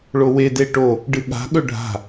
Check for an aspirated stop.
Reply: absent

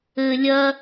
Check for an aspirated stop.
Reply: absent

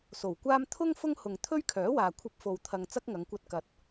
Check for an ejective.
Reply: absent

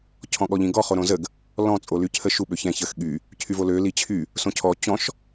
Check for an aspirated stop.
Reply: present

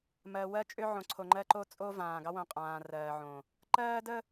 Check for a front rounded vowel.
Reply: present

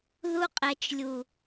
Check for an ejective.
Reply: present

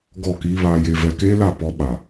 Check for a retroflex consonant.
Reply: absent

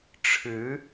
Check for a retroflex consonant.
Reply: present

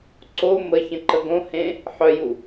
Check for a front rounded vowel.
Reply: present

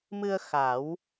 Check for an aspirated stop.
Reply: absent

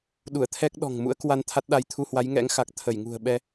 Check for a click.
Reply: absent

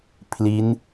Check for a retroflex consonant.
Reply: absent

